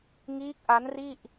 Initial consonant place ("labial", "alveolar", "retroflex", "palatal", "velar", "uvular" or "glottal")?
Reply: velar